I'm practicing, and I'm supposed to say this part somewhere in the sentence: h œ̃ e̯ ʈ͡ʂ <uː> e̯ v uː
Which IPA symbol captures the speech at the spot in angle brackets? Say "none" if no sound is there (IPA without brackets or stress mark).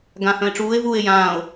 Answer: uː